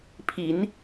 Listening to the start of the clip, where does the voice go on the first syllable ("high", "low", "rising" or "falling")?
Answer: rising